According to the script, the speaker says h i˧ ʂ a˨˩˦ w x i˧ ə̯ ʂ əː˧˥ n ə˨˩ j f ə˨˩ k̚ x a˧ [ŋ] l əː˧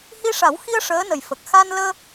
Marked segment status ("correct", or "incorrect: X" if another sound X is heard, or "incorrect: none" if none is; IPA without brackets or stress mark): incorrect: n